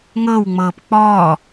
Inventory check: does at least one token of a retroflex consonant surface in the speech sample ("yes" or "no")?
no